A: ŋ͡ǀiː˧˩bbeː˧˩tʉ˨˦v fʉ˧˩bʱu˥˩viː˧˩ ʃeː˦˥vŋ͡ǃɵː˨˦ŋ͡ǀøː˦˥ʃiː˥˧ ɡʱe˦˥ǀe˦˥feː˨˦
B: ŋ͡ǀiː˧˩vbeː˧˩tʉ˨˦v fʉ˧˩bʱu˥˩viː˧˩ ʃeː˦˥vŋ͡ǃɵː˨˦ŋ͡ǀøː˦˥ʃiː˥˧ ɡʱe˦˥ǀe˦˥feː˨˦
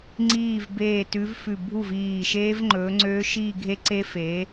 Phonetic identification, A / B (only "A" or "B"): B